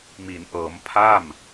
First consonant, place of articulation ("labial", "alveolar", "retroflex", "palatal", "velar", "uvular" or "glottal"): labial